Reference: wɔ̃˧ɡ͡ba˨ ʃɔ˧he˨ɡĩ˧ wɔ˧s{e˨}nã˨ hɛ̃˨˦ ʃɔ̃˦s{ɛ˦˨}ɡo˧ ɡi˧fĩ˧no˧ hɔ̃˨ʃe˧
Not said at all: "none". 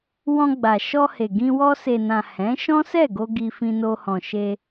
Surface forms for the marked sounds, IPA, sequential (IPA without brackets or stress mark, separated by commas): e˨, ɛ˦˨